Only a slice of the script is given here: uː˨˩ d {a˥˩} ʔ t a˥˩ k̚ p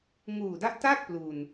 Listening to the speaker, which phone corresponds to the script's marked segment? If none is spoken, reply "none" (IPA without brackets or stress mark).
a˦˥